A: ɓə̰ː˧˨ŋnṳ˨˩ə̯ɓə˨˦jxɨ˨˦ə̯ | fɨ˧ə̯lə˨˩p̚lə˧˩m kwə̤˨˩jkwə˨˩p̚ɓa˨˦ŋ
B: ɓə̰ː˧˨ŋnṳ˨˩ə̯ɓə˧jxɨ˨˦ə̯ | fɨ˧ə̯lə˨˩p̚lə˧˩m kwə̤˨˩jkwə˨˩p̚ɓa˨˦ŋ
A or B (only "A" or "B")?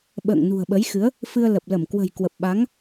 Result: A